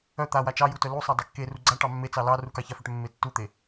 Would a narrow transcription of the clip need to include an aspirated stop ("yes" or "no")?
no